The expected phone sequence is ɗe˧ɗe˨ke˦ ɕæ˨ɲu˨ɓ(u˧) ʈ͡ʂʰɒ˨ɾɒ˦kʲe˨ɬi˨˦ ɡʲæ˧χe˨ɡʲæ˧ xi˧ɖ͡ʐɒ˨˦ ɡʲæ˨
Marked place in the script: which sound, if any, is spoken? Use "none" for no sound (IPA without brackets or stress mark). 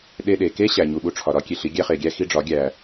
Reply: u˧